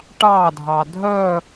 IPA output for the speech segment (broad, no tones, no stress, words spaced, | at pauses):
ʈɑdʱɑ dʱœ